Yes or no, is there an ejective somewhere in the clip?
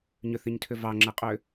yes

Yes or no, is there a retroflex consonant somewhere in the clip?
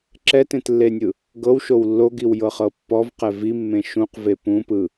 no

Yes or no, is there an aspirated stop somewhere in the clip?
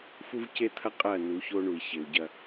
yes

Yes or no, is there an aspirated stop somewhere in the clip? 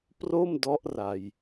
no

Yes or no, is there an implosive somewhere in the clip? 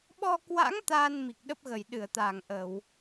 yes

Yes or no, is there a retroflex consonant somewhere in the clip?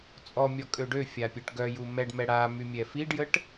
yes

